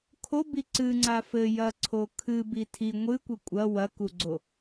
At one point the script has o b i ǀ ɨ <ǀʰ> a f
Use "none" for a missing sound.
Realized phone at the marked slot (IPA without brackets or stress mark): ŋ͡ǀ